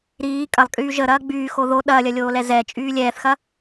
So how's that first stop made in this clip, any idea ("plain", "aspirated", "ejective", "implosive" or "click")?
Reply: ejective